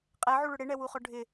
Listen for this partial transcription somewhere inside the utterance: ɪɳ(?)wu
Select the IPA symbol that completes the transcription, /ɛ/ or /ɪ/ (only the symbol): ɛ